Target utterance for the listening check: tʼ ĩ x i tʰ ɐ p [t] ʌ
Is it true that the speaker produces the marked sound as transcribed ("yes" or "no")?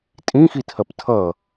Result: no